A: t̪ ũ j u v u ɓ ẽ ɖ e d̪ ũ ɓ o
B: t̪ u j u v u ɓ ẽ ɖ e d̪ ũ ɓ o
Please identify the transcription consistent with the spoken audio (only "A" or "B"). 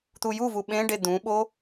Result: B